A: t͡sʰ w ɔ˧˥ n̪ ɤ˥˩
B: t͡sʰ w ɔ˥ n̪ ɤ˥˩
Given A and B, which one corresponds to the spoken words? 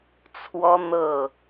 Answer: B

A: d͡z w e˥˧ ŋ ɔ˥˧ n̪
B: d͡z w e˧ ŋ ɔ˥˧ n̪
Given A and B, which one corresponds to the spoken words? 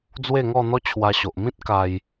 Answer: A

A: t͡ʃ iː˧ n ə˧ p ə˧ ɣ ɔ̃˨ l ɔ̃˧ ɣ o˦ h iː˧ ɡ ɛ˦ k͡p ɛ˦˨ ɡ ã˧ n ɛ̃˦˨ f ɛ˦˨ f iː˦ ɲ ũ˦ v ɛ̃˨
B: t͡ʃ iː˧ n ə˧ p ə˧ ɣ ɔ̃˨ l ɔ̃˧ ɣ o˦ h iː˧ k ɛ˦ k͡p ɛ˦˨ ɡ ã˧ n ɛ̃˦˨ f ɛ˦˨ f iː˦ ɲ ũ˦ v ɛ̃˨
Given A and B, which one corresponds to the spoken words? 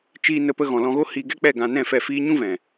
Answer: A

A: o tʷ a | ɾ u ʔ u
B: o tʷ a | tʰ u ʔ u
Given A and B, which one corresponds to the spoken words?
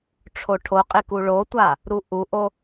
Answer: A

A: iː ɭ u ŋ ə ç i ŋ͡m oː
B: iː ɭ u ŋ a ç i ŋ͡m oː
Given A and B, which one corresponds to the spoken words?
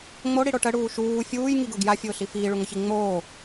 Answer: A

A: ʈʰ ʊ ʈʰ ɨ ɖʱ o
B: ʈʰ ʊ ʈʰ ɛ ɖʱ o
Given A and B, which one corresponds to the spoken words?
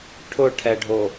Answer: B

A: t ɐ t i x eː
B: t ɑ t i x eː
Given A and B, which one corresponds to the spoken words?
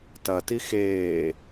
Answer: A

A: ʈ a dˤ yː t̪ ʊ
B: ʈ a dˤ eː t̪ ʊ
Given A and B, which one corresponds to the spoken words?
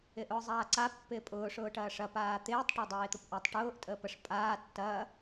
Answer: B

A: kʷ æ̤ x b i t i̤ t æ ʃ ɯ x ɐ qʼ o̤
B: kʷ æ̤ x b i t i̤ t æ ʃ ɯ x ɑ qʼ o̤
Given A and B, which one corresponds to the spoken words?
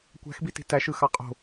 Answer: B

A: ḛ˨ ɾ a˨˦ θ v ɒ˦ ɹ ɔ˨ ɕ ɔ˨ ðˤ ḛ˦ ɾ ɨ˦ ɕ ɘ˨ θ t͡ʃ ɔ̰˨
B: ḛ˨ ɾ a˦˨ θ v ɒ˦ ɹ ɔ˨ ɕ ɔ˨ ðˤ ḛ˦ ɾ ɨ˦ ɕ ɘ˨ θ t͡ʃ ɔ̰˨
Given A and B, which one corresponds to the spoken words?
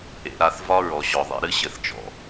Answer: B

